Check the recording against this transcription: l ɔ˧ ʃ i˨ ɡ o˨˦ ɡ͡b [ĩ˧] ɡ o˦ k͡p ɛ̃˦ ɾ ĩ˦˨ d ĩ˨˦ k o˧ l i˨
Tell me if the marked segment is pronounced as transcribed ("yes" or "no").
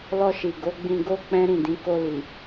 yes